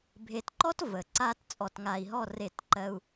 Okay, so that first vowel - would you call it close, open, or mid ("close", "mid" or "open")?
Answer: mid